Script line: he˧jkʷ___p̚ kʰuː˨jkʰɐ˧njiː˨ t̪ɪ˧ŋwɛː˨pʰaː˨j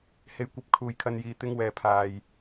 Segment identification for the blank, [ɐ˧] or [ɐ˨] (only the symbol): ɐ˧